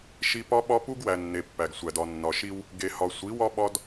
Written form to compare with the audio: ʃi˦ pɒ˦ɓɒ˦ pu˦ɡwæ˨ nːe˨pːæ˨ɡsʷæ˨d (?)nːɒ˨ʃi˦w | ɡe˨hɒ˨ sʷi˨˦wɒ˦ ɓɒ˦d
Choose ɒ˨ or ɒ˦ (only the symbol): ɒ˨